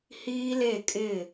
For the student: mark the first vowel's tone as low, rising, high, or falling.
high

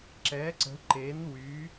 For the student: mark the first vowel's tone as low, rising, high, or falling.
rising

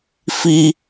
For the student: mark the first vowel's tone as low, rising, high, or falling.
high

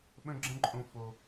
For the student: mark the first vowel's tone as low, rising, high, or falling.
high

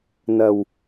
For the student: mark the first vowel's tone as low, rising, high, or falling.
low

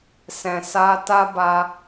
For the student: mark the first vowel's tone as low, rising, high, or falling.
low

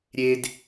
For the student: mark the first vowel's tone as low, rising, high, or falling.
high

